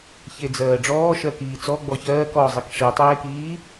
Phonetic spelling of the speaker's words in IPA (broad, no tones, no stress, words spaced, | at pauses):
çed͡zɜːɖ͡ʐɔː ʃɜkiːt͡sɔ ɡ͡bɔçɜːk ɔzˤik ʂitˤeːkiː